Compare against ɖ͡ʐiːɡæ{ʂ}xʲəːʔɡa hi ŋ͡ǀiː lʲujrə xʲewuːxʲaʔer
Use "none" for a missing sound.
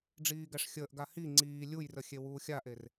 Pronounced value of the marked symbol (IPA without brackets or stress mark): ʂ